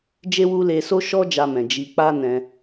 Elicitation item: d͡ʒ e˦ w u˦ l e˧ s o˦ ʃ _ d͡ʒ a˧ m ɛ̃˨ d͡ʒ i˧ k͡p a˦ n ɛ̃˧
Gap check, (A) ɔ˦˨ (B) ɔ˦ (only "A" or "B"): B